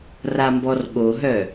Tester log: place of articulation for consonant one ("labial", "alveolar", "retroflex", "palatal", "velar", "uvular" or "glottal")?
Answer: alveolar